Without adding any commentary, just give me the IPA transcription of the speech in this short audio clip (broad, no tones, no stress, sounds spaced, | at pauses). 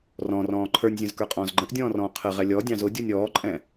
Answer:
r ɔ̃ r ɔ̃ː ǃʰ ə˞ nʲ zʲ ə̃ z k ə˞ qʼ ɔ̃ː z ɡ͡ǃ ə̃ ʔ dʲ ɔ̃ː r ɔ̃ː qʰ ə ʁ ɛ lʲ ɔ dʲ ɑ̃ z ʊ dʲ u nʲ ɔː ǃʼ ɛ̃